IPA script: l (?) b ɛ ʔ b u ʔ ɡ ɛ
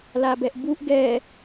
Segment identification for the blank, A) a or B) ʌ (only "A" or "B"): A